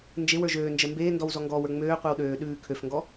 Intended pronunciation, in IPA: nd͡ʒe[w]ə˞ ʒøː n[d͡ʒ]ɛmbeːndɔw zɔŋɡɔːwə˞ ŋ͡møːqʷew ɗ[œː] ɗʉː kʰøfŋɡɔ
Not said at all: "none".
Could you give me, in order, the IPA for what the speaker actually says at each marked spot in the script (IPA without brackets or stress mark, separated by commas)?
w, d͡ʒ, øː